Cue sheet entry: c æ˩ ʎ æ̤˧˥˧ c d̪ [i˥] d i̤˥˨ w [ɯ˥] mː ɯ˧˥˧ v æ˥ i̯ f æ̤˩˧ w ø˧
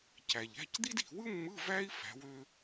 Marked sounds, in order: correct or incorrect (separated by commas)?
correct, correct